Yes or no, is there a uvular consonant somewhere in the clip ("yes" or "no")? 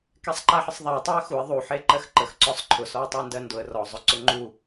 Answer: no